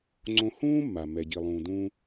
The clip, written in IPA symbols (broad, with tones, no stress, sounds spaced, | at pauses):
ŋ͡ǀ õ˧ h ũː˥ mː a˩ m ɛ˩ ɟ i˩ lˠ ũː˩ d ũː˧